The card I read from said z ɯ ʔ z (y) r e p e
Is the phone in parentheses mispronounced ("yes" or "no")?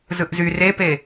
no